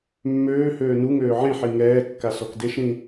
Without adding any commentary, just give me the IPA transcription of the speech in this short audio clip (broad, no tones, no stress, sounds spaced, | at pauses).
mː øː h øː n u ŋ øː ʕ ẽ ħ i ŋ ɛː kː a s ɔ k d e ʃ ɾ ĩ